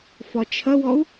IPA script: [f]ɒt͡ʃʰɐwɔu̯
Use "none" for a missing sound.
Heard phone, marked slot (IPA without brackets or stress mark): f